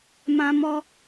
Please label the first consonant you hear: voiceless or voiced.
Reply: voiced